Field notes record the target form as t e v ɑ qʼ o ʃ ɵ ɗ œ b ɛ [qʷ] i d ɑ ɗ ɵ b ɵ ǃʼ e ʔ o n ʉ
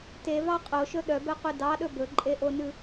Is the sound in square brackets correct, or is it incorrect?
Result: correct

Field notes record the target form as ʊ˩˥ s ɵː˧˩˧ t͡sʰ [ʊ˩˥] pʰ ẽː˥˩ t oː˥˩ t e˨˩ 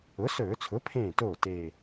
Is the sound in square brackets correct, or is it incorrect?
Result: correct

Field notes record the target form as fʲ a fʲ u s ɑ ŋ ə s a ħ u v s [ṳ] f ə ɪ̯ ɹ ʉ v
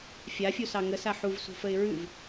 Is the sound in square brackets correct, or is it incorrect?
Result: correct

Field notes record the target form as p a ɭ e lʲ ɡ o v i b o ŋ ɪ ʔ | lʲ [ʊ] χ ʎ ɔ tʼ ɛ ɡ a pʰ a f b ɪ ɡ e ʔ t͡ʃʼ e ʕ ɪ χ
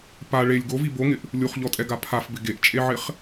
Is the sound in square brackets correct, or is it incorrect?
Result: incorrect: u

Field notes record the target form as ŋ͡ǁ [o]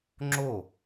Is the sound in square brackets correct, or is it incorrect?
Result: correct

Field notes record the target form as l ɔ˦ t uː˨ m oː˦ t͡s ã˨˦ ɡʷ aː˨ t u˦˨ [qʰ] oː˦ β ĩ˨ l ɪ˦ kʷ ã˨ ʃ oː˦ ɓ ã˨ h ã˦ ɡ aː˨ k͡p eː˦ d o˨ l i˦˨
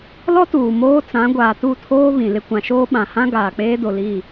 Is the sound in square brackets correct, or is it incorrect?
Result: incorrect: tʰ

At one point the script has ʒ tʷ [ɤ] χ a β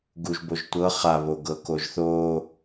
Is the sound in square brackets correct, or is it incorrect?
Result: correct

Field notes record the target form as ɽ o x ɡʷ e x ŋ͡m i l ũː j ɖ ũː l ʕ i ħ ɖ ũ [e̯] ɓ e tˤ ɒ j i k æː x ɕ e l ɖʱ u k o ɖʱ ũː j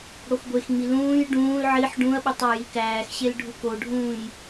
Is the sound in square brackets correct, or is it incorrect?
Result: incorrect: ɐ̯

